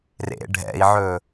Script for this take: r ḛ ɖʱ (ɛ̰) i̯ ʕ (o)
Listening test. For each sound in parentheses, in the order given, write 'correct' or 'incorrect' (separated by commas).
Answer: correct, incorrect